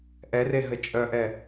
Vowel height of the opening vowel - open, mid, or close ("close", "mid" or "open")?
mid